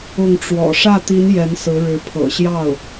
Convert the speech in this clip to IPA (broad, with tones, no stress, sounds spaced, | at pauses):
ʊ˥˩ ŋ ʈ͡ʂ w ɔ̰˨˩ ʂ ä˥˩ t̪ i˧˥ n j ɛ˧˥ n s ɹ̩˧˥ ɻ ɻ̩˧˥ pʰ ɤ̰˨˩ ɕ j ɑ˥˩ ʊ̯